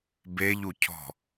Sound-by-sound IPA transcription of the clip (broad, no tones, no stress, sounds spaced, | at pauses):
b e ʎ u cʰ ɔ̤